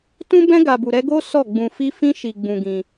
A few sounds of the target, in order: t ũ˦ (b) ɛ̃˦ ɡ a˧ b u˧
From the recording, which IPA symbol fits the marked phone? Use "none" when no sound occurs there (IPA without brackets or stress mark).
b